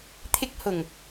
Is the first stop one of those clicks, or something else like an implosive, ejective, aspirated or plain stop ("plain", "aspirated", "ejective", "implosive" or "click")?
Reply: aspirated